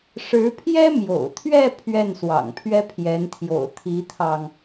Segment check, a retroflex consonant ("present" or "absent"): present